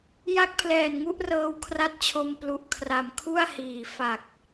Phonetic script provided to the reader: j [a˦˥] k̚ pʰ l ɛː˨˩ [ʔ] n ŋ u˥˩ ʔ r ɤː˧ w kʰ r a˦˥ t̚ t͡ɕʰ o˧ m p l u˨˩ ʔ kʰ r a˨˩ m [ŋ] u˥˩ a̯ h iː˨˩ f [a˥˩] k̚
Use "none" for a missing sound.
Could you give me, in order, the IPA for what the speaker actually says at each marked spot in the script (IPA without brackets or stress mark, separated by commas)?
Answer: a˦˥, none, kʰ, a˨˩